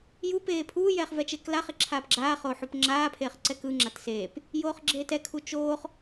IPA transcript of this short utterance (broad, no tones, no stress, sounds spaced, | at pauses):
j u p eː pʰ uː j ɛː χ v ɛ t͡ʃ e k l a χ e ǁʰ aː p ɡ͡ǁ aː χ oː ħ u p ŋ͡ǁ aː pʰ eː χ ǀ ɛ k ɯ ŋ͡ǁ a t s eː p | j oː χ ɡ͡ǁ e t ɛ kʰ u t͡ʃ oː χ